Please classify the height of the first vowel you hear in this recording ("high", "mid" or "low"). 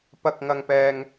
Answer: low